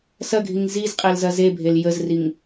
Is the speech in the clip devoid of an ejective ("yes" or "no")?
no